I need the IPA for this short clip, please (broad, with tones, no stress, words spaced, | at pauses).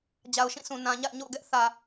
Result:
d͡ʑa˨ʊ̯ʃĩ˦˨sʰũ˨ nã˨ɲa̰˦˨ɪ̯ɲo̰˦˨ʊ̯ɡɛ˦ʔ θä˨